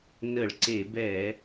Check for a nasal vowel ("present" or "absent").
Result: absent